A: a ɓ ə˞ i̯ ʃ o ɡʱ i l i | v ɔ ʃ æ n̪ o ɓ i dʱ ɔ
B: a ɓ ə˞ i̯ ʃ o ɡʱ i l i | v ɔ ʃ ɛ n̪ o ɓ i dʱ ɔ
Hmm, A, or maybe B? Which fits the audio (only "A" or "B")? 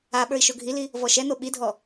B